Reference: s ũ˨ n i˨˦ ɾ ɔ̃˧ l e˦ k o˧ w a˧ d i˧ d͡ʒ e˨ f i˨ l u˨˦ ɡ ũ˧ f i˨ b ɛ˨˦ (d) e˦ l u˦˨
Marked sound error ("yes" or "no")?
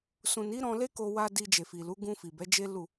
yes